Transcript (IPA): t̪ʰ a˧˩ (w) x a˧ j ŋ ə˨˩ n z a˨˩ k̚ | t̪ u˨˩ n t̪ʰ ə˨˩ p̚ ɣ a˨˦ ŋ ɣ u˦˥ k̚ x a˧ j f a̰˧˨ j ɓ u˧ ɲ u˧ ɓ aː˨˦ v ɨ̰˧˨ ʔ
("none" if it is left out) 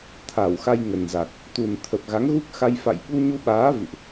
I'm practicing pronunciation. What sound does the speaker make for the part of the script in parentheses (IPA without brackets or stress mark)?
w